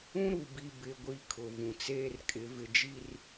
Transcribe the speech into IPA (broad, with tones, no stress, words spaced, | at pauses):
ũ˦ɾu˨bi˨ bɪ˨ɡʷi˨ kʰʊ˨vũ˨t͡seː˦rkʼɪ˨˦ vɪ˨d͡ʒi˦˨r